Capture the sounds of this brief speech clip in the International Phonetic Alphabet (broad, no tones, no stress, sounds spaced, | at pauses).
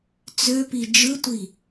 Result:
t͡s ø p i d͡ʒ ɯ tʷ i